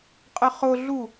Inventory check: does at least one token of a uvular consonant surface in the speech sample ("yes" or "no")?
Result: yes